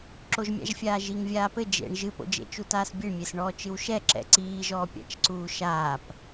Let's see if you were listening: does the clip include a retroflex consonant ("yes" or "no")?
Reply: yes